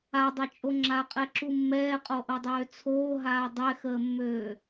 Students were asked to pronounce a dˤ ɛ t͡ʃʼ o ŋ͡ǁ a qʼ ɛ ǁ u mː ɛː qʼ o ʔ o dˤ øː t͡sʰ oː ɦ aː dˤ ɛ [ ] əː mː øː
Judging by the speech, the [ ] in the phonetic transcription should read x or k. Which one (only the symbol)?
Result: x